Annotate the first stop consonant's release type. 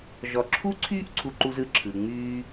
click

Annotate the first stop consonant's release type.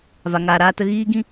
plain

